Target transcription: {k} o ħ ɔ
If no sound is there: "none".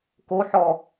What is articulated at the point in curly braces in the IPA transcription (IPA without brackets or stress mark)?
k